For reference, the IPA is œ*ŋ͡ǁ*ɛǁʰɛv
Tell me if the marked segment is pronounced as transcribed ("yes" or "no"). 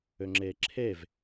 yes